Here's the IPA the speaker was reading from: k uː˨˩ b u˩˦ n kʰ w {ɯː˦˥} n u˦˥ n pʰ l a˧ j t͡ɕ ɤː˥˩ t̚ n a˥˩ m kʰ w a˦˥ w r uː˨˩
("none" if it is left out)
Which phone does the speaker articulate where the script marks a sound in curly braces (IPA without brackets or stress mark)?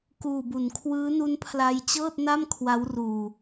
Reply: ɯː˦˥